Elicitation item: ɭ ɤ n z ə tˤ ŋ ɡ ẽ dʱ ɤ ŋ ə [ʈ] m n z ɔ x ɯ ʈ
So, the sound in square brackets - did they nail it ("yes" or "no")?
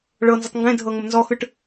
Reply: no